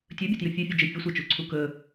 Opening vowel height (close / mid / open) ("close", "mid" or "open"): mid